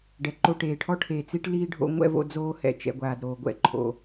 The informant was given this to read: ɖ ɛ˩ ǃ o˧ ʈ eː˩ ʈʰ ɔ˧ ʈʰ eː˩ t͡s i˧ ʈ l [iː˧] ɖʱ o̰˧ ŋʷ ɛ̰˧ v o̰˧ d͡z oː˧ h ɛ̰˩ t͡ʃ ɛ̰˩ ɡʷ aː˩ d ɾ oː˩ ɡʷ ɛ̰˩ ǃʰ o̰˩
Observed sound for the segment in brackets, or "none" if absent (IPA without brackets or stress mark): iː˧